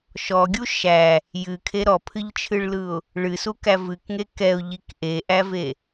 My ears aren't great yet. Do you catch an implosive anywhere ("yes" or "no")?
no